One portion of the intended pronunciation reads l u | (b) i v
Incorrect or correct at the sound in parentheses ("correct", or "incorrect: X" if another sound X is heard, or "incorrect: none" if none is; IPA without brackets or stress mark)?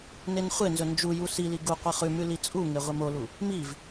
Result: incorrect: m